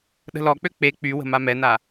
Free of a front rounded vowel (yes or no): no